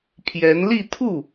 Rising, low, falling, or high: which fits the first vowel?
rising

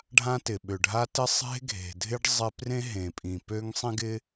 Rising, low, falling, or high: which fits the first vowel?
high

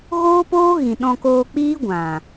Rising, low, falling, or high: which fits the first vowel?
high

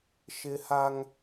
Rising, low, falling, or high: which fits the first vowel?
high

